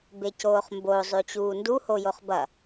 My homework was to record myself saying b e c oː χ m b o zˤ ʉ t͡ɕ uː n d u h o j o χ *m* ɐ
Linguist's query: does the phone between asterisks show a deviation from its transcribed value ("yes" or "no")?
yes